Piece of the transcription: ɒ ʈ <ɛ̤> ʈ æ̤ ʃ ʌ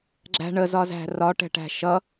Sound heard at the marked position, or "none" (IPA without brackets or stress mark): ɛ̤